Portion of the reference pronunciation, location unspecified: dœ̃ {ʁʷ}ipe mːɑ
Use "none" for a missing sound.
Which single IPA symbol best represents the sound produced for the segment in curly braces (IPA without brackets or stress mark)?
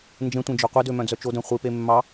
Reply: χʷ